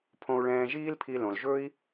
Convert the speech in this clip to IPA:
pʰ õ˧ u̯ ɭ ɛ̃ː˧ ʒ iː˥ l pʰ i˧ l õ˩ l ʒ ɵ˥ i̯

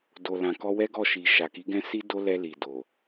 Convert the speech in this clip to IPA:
d o˨ l ã˨ k ɔ˧ w ɛ˦ ɡ ɔ˦˨ ʃ i˨ ʃ a˨ k i˨˦ ɡ ɛ̃˦ s i˦ d o˦ l ɛ˧ l i˨ d o˨

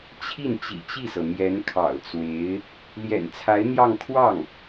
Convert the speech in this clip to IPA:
t͡ɕʰ i˥˩ n t͡ɕ ḭ˨˩ t͡ɕ i˥˩ s ɤ˩ n̪ j ɛ˧˥ n kʰ ɑ̰˨˩ ʊ̯ t͡s w e˧˥ ɪ̯ | l j ɛ̰˨˩ n t͡sʰ a˧˥ ɪ̯ n̪ j ɑ˥˧ ŋ kʰ w ɑ˥˩ ŋ

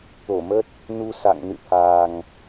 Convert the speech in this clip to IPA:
t̪ o˧˩ m ə˦˥ t̚ | n u˧ s a̰˧˨ ŋ n ɨ̰˧˨ t̪ʰ aː˨˩ ŋ

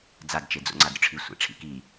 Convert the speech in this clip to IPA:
d͡z a d t͡ʃ e d͡z o̰ ŋ͡ǀ a d ɾʲ ɵ ʈ͡ʂʰ i sʷ ḛ ʈ͡ʂʰ ḭ k i

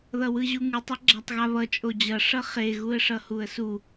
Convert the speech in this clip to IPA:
ð ʌ w ɯ ʑ u ŋ ɯ tˤ ʌ ɡ͡ǁ a tˤ ɣ a β ʌ t͡ʃʼ o d͡ʑ ʌ ʂ ʌ χ e ɣ u ə̯ ʂ ʌ h u ə̯ s u

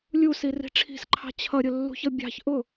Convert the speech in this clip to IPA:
lʲ u s i r i̤ ʈ͡ʂʰ i̤ s ǃʰ ɑ̤ t͡ɕʰ ʌ ɾʲ ʊ lː ṳ ç ʌ bʲ ɑ̤ ç ʔ ʊ

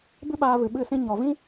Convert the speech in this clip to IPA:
b ɨ˦ ɓ aː˧ v ɨ˨ ɓ ɨ˦˨ s ĩ˦ ɲ ɔ˨ v ĩ˦

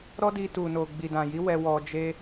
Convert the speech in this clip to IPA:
ɾ ɔ˦ d i˧ t u˨ n o˨ ɡ͡b i˨ d ã˨ j i˨˦ w ɛ˧ w ɔ˧ d͡ʒ e˦

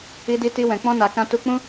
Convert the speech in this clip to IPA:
i˦ d i˦ t i˦ w ɛ̃˧ k͡p ɔ̃˦ n a˧ k ã˧ t u˧ k͡p ũ˦

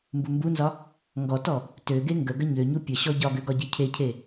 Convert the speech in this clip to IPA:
m b u m b u n z ɒ | ŋ ɡ ɔ t ɔ | t ø ɡ e ŋ ɡ ə ɡ ə ɲ ø ɲ u pʲ ə ɕ ɔ ɟ ɒ ɡ ø ɡ ɒ ɟ i cʰ e cʰ e

